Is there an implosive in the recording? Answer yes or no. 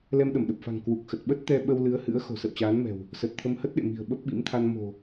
yes